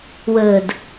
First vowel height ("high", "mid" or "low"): mid